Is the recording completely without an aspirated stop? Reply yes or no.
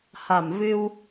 yes